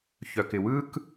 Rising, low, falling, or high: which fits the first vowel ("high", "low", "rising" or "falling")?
low